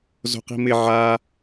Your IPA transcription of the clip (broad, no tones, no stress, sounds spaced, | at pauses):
z o̤ q i̤ m ɪ ʕ a